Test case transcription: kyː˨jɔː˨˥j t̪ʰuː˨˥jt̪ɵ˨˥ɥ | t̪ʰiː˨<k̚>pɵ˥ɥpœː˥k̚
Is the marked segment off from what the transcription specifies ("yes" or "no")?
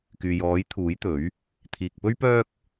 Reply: no